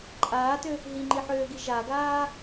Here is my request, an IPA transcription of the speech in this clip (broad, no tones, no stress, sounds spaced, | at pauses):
ǃʼ aː t ø | ɦ i ŋ͡ǃ i ħ øː ɡ i ʒ a ɡ aː